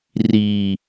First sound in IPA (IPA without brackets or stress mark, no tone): r